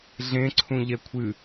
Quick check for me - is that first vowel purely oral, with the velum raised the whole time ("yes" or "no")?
no